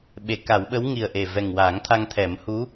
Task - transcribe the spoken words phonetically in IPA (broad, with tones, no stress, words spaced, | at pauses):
ɓe˨˩˦ka˨˩˦wɓə˧˥w ŋi˨˩ə̯ʔe˨˩vɛ˨˩ŋ waː˨˩˦ŋt̪ʰa˧ŋt̪ʰɛ˨˩˦m hu˧˥